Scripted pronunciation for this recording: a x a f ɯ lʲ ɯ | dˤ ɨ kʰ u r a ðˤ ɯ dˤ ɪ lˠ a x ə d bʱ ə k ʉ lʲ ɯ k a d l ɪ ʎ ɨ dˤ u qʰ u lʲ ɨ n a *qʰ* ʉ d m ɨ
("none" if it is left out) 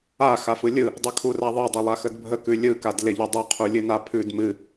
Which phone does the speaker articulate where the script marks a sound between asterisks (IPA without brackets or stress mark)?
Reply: pʰ